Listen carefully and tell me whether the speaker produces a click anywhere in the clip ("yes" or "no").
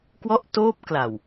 no